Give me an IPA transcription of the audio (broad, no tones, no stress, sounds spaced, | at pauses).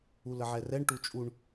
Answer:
u l ə ʕ ɛ r ɛ ɳ ʈ u t͡ʃʼ u ɳ